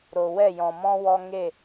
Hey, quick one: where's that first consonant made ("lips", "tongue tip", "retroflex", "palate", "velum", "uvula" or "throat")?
tongue tip